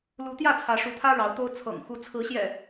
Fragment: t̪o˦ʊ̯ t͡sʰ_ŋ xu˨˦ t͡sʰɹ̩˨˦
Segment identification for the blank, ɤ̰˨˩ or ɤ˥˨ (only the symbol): ɤ̰˨˩